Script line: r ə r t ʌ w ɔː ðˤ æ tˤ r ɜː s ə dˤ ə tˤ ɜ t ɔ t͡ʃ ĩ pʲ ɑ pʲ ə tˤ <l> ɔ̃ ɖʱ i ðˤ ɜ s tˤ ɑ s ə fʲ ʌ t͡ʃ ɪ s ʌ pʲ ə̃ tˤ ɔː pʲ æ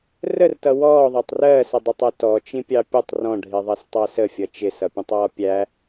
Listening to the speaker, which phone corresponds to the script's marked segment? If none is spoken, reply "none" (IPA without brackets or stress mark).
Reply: r